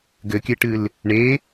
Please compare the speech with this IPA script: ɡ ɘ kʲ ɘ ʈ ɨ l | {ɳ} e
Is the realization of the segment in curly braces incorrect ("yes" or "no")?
no